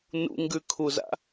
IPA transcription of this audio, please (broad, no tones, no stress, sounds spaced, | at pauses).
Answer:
n ṵ ŋ ɡ ʉ kʰ u z a̰